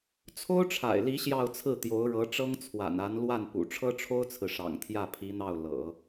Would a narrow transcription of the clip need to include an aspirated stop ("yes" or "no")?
yes